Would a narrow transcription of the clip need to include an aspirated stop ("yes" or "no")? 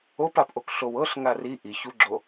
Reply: no